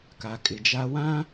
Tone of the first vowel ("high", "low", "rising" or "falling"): low